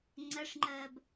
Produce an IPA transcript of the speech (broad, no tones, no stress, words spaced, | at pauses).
ŋ͡ǀɜʂŋ͡ǃɜːb